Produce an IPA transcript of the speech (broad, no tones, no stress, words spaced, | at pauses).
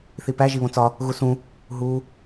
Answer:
θipæ ʒiβõt͡sɒ | ɣusũ | ɦu